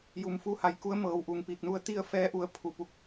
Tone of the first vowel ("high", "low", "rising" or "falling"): low